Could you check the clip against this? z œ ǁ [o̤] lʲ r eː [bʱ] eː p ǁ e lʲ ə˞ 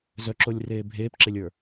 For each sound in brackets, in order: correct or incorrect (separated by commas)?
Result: incorrect, correct